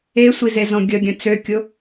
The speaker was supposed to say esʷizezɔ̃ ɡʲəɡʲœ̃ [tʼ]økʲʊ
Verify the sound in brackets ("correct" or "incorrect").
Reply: incorrect